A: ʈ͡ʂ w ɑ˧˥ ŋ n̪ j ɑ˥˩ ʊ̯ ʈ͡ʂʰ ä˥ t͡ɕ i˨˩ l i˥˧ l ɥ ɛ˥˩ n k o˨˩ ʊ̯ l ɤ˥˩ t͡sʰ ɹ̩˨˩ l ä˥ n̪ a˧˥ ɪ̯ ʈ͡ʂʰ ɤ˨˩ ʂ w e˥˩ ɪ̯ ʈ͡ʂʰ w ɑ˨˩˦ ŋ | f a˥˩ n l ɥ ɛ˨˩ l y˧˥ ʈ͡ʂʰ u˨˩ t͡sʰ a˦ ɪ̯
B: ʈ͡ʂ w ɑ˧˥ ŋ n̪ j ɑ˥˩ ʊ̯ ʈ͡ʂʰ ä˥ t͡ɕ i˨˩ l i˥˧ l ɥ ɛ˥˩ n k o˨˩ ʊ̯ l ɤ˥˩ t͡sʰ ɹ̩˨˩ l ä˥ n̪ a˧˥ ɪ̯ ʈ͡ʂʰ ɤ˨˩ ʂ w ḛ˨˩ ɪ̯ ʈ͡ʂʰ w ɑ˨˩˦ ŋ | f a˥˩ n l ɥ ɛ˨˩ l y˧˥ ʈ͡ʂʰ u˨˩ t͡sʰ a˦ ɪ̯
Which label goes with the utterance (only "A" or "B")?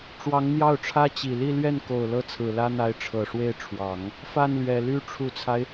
A